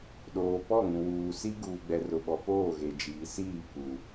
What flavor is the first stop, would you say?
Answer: implosive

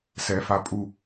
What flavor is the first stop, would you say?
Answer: ejective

